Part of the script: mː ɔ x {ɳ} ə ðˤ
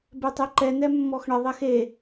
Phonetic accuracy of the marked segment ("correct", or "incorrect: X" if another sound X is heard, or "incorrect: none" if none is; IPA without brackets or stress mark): correct